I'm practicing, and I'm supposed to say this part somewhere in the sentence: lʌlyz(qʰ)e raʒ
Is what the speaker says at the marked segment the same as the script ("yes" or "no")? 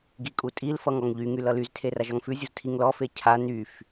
no